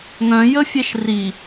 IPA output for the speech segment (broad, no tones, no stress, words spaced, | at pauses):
ŋœ̃jəfʲɛʃ ri